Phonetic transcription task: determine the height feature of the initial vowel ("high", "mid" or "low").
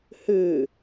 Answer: high